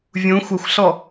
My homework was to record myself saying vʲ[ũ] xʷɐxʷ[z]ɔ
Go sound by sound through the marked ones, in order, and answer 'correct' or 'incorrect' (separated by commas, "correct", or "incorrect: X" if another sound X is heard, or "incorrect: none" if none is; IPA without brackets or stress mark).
correct, incorrect: ɬ